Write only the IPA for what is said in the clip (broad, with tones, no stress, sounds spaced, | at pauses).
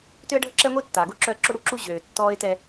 t ø˦ ə̯ ɖʱ ə˦ ǁ ɛ˦ ŋʷ i˦ tː aː˨ ɡ o˦ ǁ œ˦ ə̯ ǁ o˦ ɽ u˦ ǁ u˦ ʑ øː˨ tː ɔː˦ ɪ̯ t ɛ˦